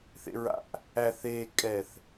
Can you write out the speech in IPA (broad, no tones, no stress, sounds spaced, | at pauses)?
θ ḛ ɹ a̰ ʔ | æ θ eː kʼ ɛ θ